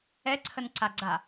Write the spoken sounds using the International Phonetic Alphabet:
ɛ ǀʰ ə n ǀ a ɡ͡ǀ a

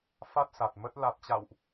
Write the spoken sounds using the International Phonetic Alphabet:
f a˦˥ t̚ s a˨˩ t̚ m ə˦˥ t̚ l a˨˩ t̚ t͡ɕ a̰˧˨ w ʔ

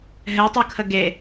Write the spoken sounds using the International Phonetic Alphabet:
ɦ ɛ tˤ u kʰ ə ɡ e

